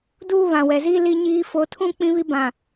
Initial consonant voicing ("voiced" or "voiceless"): voiced